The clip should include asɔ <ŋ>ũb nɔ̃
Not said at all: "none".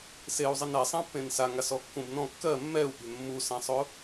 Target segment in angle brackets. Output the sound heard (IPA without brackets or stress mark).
kː